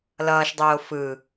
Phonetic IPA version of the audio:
l ʌː ʃ dˤ oː f ɯ

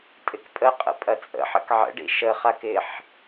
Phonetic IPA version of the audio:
tʼ ɪ k pʼ ə qʼ ə̰ pʼ ɐ t͡sʼ ə̰ ħ ə̰ k ʕ ə̰ ɖ ḭ ʃ ə χ a k ɪ ħ

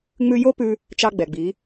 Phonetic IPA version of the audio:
ŋ͡m ʉ˧ j o˥ p ʉ˧ | t͡ʃ ɑ˧ ɡ͡b ɛ˩ ɡ͡b i˩˧

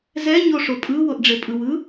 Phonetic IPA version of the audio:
z ɛ ɲ o ʂ o pʼ ɯ w o ʔ ɖ͡ʐ e pʼ ɯ w ɯ

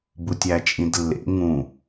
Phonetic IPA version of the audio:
b u tʲ æ t͡ʃʼ ĩ d lː ḛ ŋ ũ

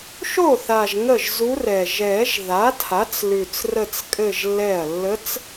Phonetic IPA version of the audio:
ʃ o˥˩ θ a˨˩ ʒ ŋ ə˥˩ ʒ z u˧˥ r ɛ˨˩ ʒ ɛ˨˩˦ ʒ ð a˩˥ tʰ a˩˥ t͡s l ʉ˨˩ t͡s r ə˥˧ t͡s kʼ ɘ˥˧ ʒ lː ɛ˥˩ ɐ̯ lː ə˧˥ t͡s

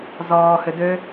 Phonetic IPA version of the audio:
z ɔː h ʏ d ø

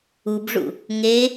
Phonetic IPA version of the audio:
u b ʐ ṵ | ŋ e

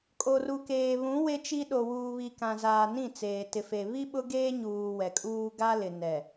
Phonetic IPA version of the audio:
kʼ o˨ r u˨ k eː˨ β ũ˨˦ w e˦ t͡ʃ i˦ ɗ o˨ w uː˨ β i˨ k ã˨ z aː˨ n ĩ˦˨ t͡s eː˨ t ɪ˨ f e˨ β i˦ ɓ ʊ˦ ɡ eː˦ ɲ uː˨ w ɛ˨ kʼ uː˦ ɡ a˦ l ɪ˨ n ɛ˨

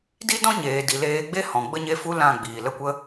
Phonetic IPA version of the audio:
d i˦ d ɔ̃˦ ɲ eː˨ d i˨ l eː˧ ɡ͡b e˦ h ɔ̃˨ ɡ͡b ə˦ ɲ e˦ f u˦ l ã˦˨ ɡ͡b iː˨ l ə˦ kʷ ə˦

